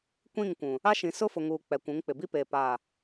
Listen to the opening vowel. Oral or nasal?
nasal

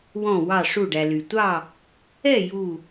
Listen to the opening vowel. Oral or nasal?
nasal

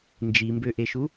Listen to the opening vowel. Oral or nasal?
oral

